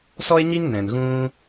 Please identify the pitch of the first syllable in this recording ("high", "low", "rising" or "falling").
high